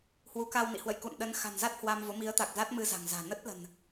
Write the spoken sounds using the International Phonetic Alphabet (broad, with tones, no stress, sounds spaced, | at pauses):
h w u˨˦ k a˧ w n ḭ˧˨ h w ə̰˧˨ j k ṵ˧˨ n ɗ ə˨˦ n x a̤˨˩ n z a˦˥ t̚ h w a˧ m v o˨˦ m i˨˦ ə̯ t̪ a˨˩ k̚ z a˦˥ t̚ m ɨ˧ z a̤˨˩ ŋ z a̤ː˨˩ n ə˦˥ t̚ l ə̤˨˩ n